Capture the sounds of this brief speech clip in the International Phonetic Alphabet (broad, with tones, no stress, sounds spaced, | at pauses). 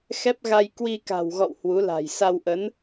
x ɛ˦˥ p̚ ɣ a˧ j k w i˧ k a̤˨˩ w ɣ ɔ̰˧˨ w h w u˨˦ l a̤˨˩ j s a˧ w ʔ ə˨˦ n